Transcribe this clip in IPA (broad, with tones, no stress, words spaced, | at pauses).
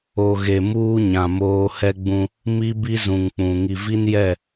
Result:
o˨ɣe˨ muː˦ ɲã˨moː˦ hɛ˦ɡ͡bũ˦ | mi˦bi˦zũ˨ŋk͡pũ˨ ŋi˨vi˦njɛ˦˨